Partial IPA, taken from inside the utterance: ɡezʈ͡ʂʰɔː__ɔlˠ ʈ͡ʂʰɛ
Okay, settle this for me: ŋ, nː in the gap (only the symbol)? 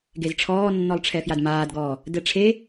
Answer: nː